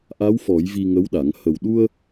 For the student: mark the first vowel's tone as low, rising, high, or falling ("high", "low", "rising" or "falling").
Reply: rising